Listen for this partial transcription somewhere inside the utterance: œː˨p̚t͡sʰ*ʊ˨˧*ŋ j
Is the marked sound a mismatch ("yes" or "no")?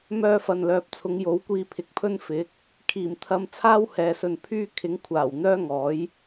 no